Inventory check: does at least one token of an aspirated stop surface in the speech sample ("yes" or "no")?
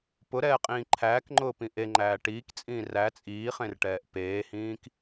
yes